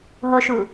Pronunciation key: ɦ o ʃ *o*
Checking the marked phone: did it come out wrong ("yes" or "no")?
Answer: yes